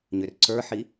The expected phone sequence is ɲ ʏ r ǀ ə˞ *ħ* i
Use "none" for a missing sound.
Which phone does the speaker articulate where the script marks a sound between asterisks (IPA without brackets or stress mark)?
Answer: ħ